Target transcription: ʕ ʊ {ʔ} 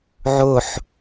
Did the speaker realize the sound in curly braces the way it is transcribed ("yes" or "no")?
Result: no